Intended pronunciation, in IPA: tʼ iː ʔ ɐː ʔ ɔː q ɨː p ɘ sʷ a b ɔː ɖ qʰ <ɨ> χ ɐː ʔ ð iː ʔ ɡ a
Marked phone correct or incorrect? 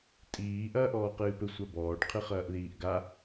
correct